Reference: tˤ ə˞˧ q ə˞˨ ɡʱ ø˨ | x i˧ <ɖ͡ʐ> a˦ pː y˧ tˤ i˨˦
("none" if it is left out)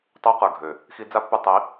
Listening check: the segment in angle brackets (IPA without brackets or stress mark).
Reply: d͡z